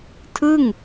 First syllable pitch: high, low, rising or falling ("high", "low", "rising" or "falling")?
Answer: falling